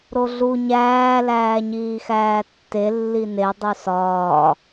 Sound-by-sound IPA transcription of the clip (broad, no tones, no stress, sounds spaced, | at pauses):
ɾ o ɮ u ɲ æː l æː ɲ iː x æː tː e lː i n e dˤ u s ɒː